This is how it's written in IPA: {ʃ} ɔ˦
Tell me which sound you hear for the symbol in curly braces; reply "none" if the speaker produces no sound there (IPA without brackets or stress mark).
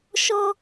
ʃ